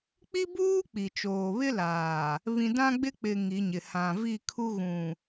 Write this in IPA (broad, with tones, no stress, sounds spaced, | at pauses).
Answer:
k͡p i˦ b uː˦ k͡p i˨ t͡ʃ oː˨ β ɪ˦ l aː˨ | β ĩ˨ d ã˦ ɡ͡b ɪ˦ k͡p ɪ˨ ŋ i˨˦ ɲ ɪ˨ h ã˨ v i˦˨ kʰ u˦ ɣ ũ˨